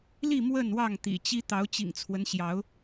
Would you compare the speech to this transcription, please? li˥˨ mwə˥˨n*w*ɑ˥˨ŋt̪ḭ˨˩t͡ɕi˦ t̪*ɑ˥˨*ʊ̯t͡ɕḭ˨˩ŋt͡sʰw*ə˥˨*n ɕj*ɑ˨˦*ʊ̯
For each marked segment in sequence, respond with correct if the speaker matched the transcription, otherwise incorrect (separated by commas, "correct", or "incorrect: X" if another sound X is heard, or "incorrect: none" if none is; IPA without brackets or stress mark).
correct, incorrect: ɑ˨˦, incorrect: ə˦, correct